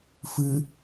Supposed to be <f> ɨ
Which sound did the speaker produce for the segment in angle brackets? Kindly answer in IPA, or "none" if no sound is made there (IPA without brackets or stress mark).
f